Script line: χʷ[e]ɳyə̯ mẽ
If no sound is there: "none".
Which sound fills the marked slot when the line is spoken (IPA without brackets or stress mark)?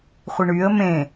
i